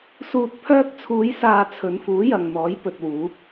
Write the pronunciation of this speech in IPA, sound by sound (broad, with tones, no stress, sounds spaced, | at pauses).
s uː˨ t̚ pʰ œː˧ k̚ t͡sʰ uː˨˧ j s aː˨ t͡sʰ ɵ˨˧ n f uː˨˥ j ɐ˨ ŋ n̪ ɔː˨˥ j p ɵ˨ t̚ w uː˨˥ p̚